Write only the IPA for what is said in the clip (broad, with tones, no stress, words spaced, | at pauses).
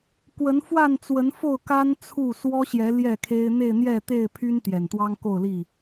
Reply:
kwə˨˦nfwa˥˨nt͡swə˨˦n fo˥˨ʊ̯ka˦n t͡sʰu˥˨ swɔ˦ɕjɛ˨˦ ljɛ˥˨kʰe˦ɪ̯ n̪e˥˨ɪ̯n̪jɛ˥˨t̪e˥˨ɪ̯pʰy˦n t̪jɛ˨˩nt̪wɑ˦ŋko˥˨ʊ̯li˥˨